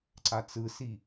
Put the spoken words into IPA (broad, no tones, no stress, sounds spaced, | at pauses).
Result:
ǀ a t͡s ɯ s i